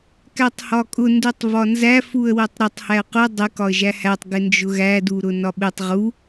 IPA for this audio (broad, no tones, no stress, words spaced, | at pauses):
kætˤhɒkʼʊ ndutˤvɒnzæ fuə̯wɜtˤɾʊtˤ hæə̯qʊ dˤɪ kɒə̯ʒæhætˤ ɡɪnd͡ʒʊɣæ duɾʊnɒɓɪtˤ ʁu